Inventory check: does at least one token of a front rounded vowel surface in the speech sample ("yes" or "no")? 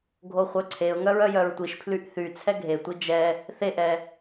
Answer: yes